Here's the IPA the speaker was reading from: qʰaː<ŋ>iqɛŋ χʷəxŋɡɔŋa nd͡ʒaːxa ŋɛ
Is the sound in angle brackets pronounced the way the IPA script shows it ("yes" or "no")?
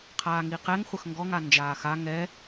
yes